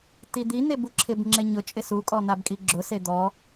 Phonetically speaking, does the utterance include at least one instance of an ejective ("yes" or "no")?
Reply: yes